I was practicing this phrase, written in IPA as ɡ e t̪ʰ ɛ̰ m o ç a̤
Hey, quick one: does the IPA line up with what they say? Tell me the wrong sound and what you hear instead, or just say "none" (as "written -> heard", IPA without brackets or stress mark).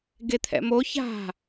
none